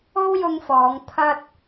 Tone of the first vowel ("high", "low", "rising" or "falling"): high